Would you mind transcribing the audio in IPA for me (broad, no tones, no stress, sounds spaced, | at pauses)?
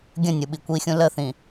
ɡʲ ə̃ nʲ ɯ ɓ i kʷ i xʲ ũ l ə θ ĩ